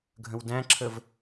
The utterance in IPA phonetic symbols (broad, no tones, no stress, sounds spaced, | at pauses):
ɡʱ ə̃ w d æ̃ ǁʰ ə v